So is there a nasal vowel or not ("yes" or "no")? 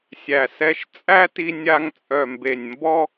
no